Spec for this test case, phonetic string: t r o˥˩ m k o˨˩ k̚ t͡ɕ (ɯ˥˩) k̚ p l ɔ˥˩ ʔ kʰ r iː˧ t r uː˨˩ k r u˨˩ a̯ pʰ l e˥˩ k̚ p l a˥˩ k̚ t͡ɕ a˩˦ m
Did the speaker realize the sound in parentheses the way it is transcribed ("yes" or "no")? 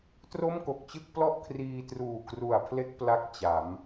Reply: yes